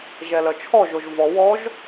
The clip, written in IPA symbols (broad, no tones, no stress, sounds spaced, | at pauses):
ʒ ɛ l œ t͡ʃʰ ɔ ʒ o ʒ v ɔ w ɔ ʒ